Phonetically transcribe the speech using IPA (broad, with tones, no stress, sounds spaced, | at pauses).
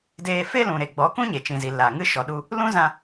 d eː˧ f e˦ l ũ˨ ɾ e˨ ɡ͡b ɔ˨˦ k ũ˦ ɲ e˨ t͡ʃ ĩ˨ z i˨ l a˨ ŋ ɨ˦ ʃ ɔ˨ ɗ u˧ | l ũ˦ z ã˧